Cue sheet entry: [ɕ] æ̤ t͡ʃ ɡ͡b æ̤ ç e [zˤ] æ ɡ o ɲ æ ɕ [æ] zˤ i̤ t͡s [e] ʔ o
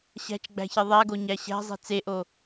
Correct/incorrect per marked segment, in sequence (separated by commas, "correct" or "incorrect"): correct, incorrect, incorrect, correct